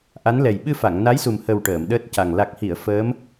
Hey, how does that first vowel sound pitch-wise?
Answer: rising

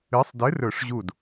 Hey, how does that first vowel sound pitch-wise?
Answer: rising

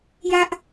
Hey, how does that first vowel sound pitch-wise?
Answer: high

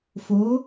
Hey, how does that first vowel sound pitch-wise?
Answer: rising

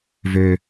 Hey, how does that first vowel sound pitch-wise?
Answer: high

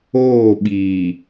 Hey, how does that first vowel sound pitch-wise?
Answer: falling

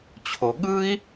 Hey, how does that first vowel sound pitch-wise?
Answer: low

